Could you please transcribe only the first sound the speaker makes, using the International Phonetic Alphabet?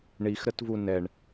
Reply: ɳ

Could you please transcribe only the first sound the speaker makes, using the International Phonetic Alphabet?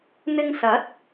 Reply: n̪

